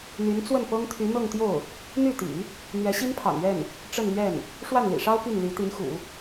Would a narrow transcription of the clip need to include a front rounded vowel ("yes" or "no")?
yes